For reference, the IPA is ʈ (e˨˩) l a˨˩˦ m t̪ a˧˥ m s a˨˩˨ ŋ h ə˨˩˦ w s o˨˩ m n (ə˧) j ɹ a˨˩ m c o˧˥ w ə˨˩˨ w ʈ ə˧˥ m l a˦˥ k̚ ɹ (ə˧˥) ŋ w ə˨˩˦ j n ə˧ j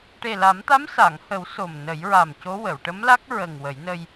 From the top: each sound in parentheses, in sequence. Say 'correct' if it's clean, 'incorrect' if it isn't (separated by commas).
correct, incorrect, incorrect